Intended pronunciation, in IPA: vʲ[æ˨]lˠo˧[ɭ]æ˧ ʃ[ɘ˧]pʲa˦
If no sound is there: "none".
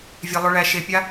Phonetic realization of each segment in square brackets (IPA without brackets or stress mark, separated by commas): æ˧, ɭ, e˧